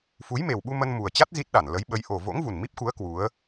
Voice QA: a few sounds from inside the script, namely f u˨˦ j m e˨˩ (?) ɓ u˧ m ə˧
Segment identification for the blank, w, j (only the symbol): w